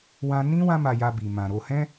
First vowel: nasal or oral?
nasal